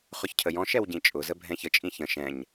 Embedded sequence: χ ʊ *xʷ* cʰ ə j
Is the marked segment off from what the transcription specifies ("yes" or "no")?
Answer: yes